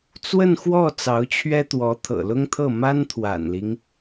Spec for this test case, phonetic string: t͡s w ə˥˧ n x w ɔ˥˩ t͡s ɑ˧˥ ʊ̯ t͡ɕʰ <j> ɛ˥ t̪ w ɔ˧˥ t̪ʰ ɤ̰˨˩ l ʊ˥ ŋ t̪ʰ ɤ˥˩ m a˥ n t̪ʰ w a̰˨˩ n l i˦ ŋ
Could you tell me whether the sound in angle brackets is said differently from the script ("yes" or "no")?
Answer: yes